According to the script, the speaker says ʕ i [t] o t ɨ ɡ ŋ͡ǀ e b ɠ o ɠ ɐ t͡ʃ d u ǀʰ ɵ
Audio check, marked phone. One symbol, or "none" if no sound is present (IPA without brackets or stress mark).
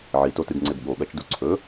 t